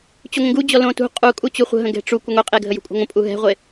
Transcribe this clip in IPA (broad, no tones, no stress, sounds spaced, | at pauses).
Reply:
t͡ɕ u ŋʷ ə̃ ɡ u d͡ʑ ɔ l õ t ṳ qʼ u kʼ u t͡ɕ u χʷ ə̤ ɦ ə̃ ɡ ɛ̤ ʈ͡ʂ u kʷ ə ŋʷ e qʼ e ɡʱ ə j ṳ kʷʼ e̤ ŋʷ ə̃ pʼ u ɦ ɛ̤ ʁʷ e